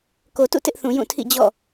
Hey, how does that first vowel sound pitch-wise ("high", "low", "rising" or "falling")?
low